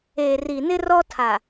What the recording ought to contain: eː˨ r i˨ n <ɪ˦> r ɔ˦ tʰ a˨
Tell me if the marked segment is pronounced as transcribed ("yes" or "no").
yes